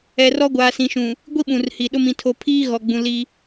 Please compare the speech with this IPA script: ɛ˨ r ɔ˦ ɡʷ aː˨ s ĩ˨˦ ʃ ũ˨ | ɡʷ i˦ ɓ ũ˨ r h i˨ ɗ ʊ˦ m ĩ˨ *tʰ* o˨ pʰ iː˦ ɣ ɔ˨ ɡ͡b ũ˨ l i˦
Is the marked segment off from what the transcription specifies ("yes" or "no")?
no